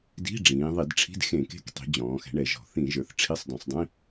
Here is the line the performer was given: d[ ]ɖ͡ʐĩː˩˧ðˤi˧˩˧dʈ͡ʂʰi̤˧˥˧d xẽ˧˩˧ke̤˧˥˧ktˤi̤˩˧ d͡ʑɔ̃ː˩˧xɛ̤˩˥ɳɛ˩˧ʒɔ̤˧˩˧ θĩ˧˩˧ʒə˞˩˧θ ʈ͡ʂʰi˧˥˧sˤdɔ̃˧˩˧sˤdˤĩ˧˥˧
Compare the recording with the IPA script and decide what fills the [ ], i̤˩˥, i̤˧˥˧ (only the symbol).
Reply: i̤˧˥˧